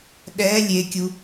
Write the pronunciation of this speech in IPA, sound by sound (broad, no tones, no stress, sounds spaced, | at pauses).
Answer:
ɗ ɛ lʲ e kʲ u